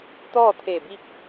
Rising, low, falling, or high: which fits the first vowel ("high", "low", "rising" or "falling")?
falling